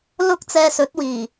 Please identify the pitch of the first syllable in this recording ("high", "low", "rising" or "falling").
high